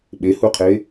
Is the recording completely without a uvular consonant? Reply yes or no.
no